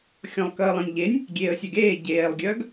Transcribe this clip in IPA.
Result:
xʲ ɔ̃ lˠ k əː lˠ ẽ nʲ ʎ e nʲ | ɡʲ eː ə̯ sʲ œ ɡ eː ɟ eː lˠ ɡʲ œ ɡ

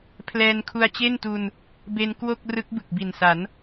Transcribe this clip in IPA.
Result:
pʰ l ɛː˧ n kʰ u˧ a̯ t͡ɕ e˥˩ n t u˧ n | b e˧ n k w o˥˩ k̚ r ɯ˦˥ k̚ b ɯ˨˩ k̚ b i˨˩ n s a˩˦ n

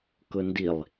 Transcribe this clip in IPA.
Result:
k ʊ n d i lˠ

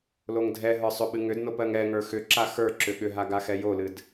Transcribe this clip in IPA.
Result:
l o ŋ dʱ ɛ ɦ ə˞ sˤ ʏ ɓ ɨ ŋ ʏ d n o p ɜ ŋ ɛ ŋ ə˞ x ʏ ǁ a x ə˞ ǁ ʏ ɠ ʏ ɦ a ɡ a x ɛ j o l ɨ d

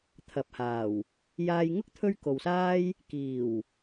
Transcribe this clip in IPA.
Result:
t̪ʰ ɐ˨ p̚ h aː˨˩ w | j aː˧ j ŋ ʊ˥ k̚ t̪ʰ ɵ˥ ɥ k o˨ w s aː˥ j | k iː˨˩ w

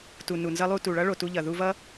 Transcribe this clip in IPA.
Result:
t u˨ n u˨ n z ʌ˧ lˠ u˧ t u˨ ɭ ʌ˦ ɭ o˨ t u˧ ʎ ʌ˨ ð u˧ v ʌ˦

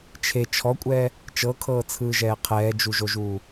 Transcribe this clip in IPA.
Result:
t͡ʃʰ e t͡ʃʰ ɔ kʷʼ ɛː | t͡ʃ ɤ kʰ ɤː t͡sʰ ɯː ʒ ɛː qʰ ɛː d͡ʒ u ʒ o ʒ uː

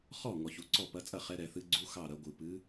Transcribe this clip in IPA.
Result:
χ ɔ˥˩ ŋ ɔ˩ ç u˩˧ ǀ ɔ˥˩ p ɐ˨˥ t͡sʼ ɐ˥˩ χ ɛ˨˥ ɾ ɛ˩˧ θ ɨ˨˥ ɡ͡ǀ u˧˥˧ x ɑ˥˩ ɾ ɐ˩˧ ɡʷ ɨ˩ p ɨ˨˥

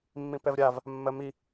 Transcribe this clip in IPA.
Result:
mː ĩ p ɛ v ɾʲ a v | mː ɜ m i

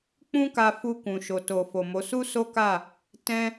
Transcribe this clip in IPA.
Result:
k͡p ũ˦ k a˧ f u˧ k ũ˨ ʃ o˨ t o˨ f o˨ m o˨˦ s u˦ s o˦ k a˦˨ | t ɛ̃˦

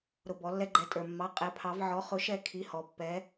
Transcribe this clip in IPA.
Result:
ɾ ʊ˩˧˩ b ɔ˩˧ lː ɛ˧ ɡ͡ǃ ɛ˩˧˩ tʼ ə˞˩ mː ɑ˩˧˩ qʼ ɛ˩˧ pʰ ɑ˩˧ v ʕ ɔ˩˥ χ ʊ˩˥ ʃ ɛ˧ kʰ i˩˧˩ h ɔ˩ pː ɛ˩˧

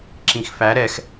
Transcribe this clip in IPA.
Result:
ǁ ĩ x f æ ɾ ɛ x

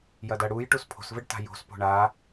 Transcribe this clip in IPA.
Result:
j ɐ d ɐ ɽ u j ʈ u s pʰ o̤ s v ɘ ɖ t a̤ j o̤ s p o̤ ɳ a

